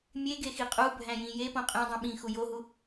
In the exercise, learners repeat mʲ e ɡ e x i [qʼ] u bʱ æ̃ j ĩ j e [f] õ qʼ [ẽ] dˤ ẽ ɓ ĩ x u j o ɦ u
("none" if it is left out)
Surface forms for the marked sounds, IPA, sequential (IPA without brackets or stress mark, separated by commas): qʼ, p, ẽ